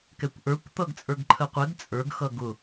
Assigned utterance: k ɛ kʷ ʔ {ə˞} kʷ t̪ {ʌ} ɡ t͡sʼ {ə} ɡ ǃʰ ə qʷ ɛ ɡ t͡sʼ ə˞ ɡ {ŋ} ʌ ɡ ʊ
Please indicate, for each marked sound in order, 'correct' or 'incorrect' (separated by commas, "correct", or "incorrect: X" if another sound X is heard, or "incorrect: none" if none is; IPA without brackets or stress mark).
correct, correct, incorrect: ə˞, incorrect: x